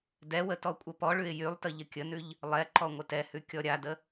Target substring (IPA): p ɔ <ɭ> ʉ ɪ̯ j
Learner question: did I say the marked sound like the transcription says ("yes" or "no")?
yes